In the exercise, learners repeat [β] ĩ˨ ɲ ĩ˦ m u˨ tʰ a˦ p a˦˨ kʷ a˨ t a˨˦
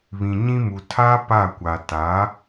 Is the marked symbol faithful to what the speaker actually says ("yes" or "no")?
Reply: yes